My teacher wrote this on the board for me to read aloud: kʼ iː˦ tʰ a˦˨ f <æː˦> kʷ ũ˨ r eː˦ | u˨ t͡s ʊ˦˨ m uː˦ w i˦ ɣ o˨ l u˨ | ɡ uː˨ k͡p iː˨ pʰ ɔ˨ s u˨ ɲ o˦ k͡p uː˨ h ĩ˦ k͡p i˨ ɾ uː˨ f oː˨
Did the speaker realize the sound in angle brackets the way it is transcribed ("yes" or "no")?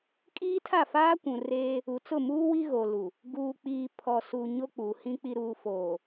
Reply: no